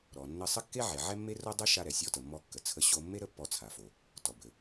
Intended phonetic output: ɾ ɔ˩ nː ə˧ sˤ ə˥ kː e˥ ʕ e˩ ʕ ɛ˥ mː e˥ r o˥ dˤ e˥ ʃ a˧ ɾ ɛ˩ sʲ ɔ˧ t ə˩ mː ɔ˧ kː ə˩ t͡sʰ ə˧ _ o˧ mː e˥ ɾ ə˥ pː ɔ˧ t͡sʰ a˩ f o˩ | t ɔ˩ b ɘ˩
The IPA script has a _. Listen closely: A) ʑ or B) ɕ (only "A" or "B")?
B